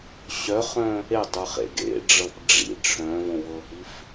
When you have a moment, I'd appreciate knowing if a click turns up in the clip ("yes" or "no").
no